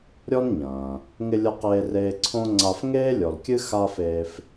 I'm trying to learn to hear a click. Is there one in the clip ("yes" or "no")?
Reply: yes